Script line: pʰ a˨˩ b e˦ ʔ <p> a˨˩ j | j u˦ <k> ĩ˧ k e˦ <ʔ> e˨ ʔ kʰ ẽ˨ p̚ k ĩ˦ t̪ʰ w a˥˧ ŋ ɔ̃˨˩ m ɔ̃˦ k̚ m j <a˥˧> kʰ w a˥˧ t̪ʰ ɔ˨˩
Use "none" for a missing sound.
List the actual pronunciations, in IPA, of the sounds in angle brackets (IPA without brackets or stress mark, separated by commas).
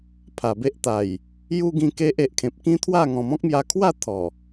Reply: t̪, ɡ, ʔ, a˧